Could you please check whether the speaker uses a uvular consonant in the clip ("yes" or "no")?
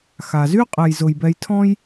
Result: yes